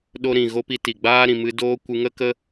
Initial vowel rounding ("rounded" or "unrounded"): rounded